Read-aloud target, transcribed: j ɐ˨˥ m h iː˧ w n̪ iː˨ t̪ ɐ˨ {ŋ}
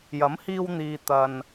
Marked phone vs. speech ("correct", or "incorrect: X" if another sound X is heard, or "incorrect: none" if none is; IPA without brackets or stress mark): incorrect: n